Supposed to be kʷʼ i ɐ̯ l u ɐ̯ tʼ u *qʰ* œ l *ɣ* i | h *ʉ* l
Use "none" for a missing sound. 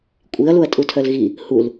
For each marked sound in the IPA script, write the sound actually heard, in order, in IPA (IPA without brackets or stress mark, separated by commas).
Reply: tʰ, ɣ, u